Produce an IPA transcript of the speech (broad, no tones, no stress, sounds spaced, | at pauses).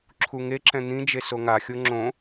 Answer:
ǁʰ u ŋ e ǁ ɛ̃ n̪ ĩ d͡ʒ e s o ŋ a xʲ o ŋ͡ǁ õ